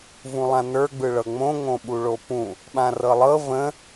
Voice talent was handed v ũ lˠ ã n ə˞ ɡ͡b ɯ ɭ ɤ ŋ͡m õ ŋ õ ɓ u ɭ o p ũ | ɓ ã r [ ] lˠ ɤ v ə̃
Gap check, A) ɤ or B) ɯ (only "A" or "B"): A